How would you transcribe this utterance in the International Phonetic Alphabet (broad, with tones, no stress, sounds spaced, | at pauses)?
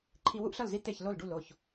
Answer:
ǃʰ i˦ w u˦ ʔ ɬ ʌ˥˩ l z i˦ t̪ e˥˩ ç l o˥˩ l ɖ u˥˩ l o˥˩ ç